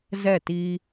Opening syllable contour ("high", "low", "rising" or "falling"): falling